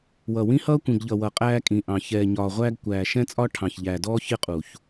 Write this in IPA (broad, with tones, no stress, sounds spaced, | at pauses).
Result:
w ʌ˨ w ĩ˦ h ʌː˦ kʷ ĩ˨ ɡ ʎ ʌ˨ w ʌ˨ qʼ æː˦ kʼ ĩ˨ ʔ ɑ̃˨ ç ɛː˨ ɲ ɒː˨ ʁʷ æː˦ ɡ kʷ æː˨ ʃ ɛ̃˦ t͡sʼ ɒ˦ ʈʰ ɑ̃˨ ç ʎ æː˨ d ɔː˦ ç ɪ˦ qʼ u˨ ç